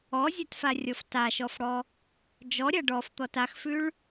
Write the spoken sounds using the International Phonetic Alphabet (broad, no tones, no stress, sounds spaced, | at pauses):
ɔ zʲ a t f a rʲ ɔ f t a ʃ ɔ f ɽ ɔ | d͡ʒ ɔ ɾʲ a ɖ ɔ f t̪ ɔ t a x f ʉ ɭ